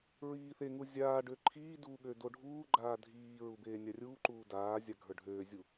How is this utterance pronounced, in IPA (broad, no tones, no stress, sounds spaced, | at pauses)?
ɹ iː θ e ŋ u zʲ aː ɖ ø ǃʰ iː d u ɠ ø d o ɖʱ uː ɡ͡ǃ aː dʱ iː ɹ u b eː nʲ a rʲ uː ǃ uː d aː zʲ a ɡʱ ə˞ ɖʱ øː zʲ u